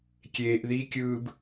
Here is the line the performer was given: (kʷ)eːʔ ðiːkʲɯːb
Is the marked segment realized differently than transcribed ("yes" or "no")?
yes